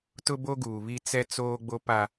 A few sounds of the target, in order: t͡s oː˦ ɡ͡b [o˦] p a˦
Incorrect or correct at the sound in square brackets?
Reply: correct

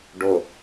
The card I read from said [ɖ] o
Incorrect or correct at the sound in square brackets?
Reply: correct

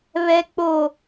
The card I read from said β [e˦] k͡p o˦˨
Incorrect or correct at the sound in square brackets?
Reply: incorrect: ɛ˦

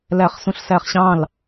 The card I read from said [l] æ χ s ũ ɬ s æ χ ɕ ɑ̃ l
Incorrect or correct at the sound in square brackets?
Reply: correct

